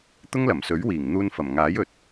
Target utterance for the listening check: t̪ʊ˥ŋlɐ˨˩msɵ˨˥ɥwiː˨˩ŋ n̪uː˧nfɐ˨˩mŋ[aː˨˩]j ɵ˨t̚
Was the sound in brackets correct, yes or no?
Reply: no